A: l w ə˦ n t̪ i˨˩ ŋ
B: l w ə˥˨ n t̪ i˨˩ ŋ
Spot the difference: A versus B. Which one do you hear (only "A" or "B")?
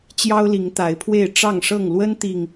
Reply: A